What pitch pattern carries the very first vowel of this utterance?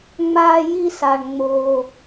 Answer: high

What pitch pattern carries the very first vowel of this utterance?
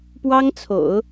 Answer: high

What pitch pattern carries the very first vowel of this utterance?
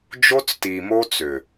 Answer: high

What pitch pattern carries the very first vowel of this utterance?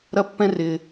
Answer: high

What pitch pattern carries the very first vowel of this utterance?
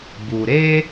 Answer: low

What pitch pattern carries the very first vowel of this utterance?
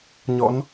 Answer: rising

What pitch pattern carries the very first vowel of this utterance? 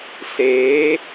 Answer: rising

